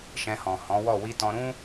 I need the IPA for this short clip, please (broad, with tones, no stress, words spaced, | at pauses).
ʃɛ̃˧hɔ̃˨hɔ̃˨˦wɔ˦˨ wi˧tɔ̃˧ɾũ˦